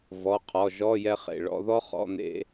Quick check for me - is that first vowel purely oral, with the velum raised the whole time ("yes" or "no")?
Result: yes